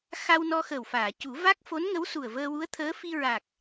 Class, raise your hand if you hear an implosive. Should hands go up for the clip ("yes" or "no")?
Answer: no